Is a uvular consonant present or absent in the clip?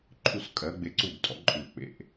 absent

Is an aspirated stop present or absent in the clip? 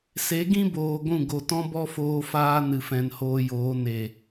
absent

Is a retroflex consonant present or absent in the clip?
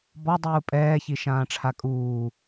present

